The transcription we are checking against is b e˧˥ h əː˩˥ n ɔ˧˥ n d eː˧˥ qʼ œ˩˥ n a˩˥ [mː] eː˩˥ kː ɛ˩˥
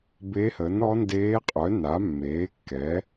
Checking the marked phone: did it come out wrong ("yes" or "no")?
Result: no